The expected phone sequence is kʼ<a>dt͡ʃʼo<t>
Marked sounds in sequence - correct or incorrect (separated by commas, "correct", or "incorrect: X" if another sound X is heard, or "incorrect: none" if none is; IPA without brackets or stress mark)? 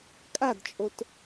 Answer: correct, correct